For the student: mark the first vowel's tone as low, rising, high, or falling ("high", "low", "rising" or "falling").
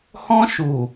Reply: high